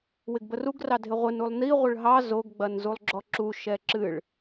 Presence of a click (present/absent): present